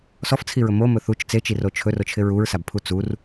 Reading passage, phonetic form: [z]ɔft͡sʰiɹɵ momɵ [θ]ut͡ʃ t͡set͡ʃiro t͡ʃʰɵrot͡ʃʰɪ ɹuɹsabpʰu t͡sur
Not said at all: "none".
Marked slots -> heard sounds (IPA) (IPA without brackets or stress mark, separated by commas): s, θ